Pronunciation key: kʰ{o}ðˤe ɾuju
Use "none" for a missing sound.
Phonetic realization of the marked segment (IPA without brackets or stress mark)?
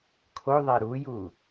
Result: o